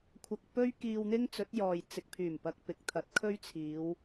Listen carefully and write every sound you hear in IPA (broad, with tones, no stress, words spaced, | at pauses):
kʷʰɐ˧k̚ pɵ˥ɥ kiː˧wn̪ɪ˥ŋt͡sɵ˨˥t̚jɔː˨j t͡sɪ˨k̚pʰyː˨˩mpɐ˨k̚pɪ˨k̚ t̪ʰɐ˨˥t̚kʰɵ˥ɥt͡sʰiː˨˧w